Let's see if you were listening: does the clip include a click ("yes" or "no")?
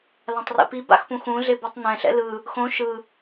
no